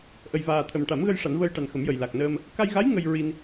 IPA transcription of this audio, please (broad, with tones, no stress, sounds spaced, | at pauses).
ʔ ə˨˩ j v aː˨˩ t̪ʰ ə˨˩ m ʈ a˨˩˦ m ɣ ə˧ j ʂ a˨˩˦ n v əː˧ j ʈ a˨˩ n x ə˨˩˦ m j ə˨˩ j l a˨˩ k̚ n əː˧ m | k a˧ j ɣ a˧˥ j ŋ ə˧ j ɹ i˧ n